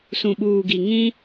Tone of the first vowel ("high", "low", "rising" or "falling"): low